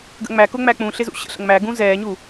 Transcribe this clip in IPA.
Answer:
ɡ ə̰ ŋ͡m æ k ʊ ŋ͡m æ k͡p ũ ɬ ɪ z ṵ ɕ ə̰ ɬ ə̰ ŋ m æ ɡ ũ z ɛː ɲ u

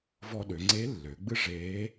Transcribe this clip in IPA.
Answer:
v ɔ˧ ɗ ø˩˧ ŋ͡ǀ e˧˥ lː ø˩˧ ɡ͡b ɨ˥ ʐ eː˧˥

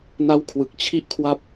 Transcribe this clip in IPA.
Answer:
n a˦˥ w kʰ w ɯ˨˩ k̚ t͡ɕʰ i˥˩ ʔ kʰ w a˥˩ p̚

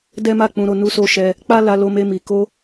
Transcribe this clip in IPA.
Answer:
d ɛ˦ m a˦˨ k͡p ũ˧ ɾ o˧ n u˦ s o˦ ʃ ɛ˧ | k͡p a˦ l a˧ l o˧ m e˧ m i˨ k o˧

